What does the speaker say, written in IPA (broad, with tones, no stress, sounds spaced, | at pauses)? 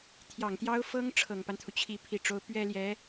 t̪ʰ j ɑ˨˩ ŋ t̪ j ɑ˥ ʊ̯ f ɤ˥ ŋ ʈ͡ʂʰ ɤ˨˩ ŋ p a˦ n t̪ʰ u˩ t͡ɕʰ i˧˥ pʰ i˨˩ ʈ͡ʂ o˧˥ ʊ̯ p ɥ ɛ˥ l j ɛ˧˥